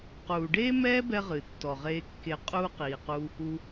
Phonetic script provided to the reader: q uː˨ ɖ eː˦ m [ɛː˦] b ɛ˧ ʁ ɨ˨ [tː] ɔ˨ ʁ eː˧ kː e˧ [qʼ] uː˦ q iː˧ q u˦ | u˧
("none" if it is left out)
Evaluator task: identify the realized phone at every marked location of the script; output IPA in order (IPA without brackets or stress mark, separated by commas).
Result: ɛː˦, tː, qʼ